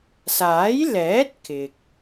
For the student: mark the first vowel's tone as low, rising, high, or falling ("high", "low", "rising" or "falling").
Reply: rising